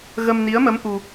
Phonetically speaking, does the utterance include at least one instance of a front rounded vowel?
no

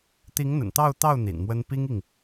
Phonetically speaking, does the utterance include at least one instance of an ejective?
no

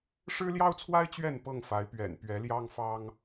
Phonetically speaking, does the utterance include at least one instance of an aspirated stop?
yes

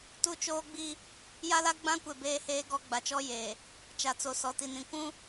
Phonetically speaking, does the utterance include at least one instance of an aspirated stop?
no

